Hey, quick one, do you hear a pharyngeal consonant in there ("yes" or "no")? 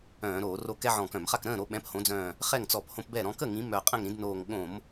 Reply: yes